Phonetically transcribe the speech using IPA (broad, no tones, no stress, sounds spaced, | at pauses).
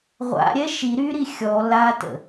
ʁʷ a̰ ɾʲ ɛ ʃ i ɾ y ɾ i xʲ ɔ l a t ə̰